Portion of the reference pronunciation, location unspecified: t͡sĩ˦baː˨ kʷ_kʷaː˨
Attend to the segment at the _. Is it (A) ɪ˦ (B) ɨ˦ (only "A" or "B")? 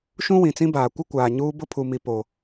A